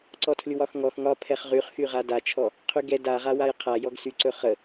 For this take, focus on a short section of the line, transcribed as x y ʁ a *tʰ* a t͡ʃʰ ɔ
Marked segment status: incorrect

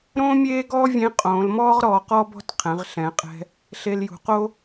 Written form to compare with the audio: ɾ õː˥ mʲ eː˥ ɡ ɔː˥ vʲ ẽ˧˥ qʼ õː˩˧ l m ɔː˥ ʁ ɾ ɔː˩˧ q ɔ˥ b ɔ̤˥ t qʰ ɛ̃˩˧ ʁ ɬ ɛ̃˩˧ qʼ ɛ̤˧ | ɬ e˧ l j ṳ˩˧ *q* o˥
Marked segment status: correct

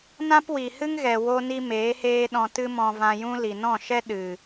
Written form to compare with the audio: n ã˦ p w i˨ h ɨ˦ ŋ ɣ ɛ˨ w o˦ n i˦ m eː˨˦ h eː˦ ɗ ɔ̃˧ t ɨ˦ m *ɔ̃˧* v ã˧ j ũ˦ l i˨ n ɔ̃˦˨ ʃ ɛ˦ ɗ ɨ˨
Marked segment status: correct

